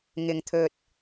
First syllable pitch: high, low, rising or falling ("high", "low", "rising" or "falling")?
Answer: low